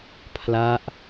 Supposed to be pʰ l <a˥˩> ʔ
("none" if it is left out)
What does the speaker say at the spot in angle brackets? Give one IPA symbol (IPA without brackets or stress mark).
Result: a˦˥